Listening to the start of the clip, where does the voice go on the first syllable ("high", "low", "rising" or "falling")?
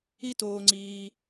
high